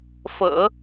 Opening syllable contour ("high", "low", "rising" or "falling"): low